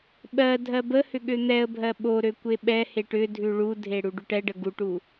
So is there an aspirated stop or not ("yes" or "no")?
no